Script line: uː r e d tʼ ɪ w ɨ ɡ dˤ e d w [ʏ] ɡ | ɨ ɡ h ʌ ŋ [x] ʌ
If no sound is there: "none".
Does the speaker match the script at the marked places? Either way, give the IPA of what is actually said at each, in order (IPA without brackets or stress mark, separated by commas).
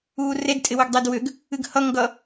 ʏ, ɡ